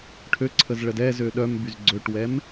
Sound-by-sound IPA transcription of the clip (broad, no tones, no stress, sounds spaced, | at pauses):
ʈʰ ø ǀʰ ə z ɭ ə d ɛ z ø ɗ œ m b y z ɡ͡ǀ ø ʈ w ɛ m